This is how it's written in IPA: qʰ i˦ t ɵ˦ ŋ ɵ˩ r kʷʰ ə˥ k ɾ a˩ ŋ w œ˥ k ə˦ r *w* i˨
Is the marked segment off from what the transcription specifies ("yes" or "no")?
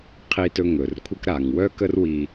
no